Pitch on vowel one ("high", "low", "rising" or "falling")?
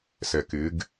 low